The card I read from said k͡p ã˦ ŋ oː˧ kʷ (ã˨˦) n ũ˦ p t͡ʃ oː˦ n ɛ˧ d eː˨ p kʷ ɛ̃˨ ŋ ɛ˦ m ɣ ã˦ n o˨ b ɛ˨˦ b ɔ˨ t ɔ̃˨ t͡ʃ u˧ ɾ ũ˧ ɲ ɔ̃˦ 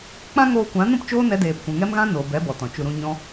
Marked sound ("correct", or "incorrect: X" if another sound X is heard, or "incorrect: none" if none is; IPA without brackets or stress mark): correct